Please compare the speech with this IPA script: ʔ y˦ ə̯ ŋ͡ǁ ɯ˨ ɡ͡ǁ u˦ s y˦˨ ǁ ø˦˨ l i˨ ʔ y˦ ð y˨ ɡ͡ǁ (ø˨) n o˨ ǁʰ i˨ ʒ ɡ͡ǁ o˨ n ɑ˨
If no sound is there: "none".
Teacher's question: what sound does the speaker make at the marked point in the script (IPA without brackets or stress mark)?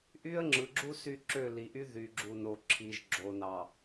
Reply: u˨